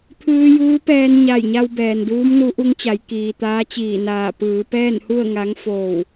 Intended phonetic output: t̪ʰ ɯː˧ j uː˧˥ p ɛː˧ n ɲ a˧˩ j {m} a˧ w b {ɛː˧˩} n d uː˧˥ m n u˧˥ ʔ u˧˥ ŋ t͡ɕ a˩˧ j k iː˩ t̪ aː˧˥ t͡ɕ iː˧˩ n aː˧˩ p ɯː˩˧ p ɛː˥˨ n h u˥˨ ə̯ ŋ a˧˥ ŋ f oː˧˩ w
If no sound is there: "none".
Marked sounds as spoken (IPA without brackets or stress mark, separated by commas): ɲ, ɛː˩